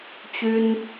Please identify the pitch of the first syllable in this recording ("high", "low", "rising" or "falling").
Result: high